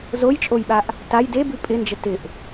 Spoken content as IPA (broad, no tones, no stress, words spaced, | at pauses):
zojt͡ʃʼojɓaʔ | taj debʉ pʼɪnd͡ʒə tɪʔ